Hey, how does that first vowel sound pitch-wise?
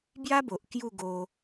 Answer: high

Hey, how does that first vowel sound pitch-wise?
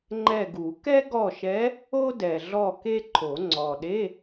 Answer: falling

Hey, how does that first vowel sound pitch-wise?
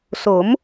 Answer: rising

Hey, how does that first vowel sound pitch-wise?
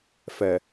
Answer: low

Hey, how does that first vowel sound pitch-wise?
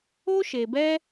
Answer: high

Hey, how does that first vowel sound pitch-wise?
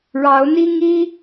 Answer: rising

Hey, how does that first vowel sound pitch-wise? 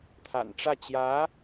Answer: low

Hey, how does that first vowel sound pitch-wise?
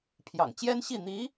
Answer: low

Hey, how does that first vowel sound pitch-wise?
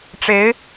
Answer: rising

